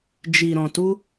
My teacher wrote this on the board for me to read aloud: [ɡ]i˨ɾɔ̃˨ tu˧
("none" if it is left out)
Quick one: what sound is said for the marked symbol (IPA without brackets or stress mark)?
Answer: d͡ʒ